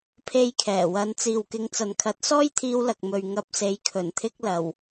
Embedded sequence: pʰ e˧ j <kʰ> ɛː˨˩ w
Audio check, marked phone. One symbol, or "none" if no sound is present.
kʰ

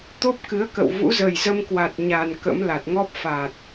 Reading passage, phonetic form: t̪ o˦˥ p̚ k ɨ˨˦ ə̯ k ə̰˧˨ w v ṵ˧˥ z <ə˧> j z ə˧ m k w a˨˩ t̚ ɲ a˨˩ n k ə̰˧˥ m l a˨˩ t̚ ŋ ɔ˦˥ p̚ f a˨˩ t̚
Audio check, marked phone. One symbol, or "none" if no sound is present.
ə˨˩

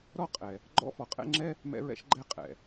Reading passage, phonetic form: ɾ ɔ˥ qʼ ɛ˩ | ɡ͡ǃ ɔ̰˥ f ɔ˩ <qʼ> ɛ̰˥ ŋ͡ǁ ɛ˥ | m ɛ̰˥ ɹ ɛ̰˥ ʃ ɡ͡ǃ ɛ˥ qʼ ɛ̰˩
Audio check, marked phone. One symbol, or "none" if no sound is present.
qʼ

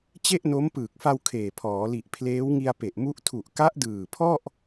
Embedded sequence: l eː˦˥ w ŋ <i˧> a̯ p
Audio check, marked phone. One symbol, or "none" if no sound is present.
i˧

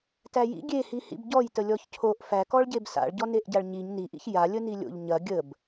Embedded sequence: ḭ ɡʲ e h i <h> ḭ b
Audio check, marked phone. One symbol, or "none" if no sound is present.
h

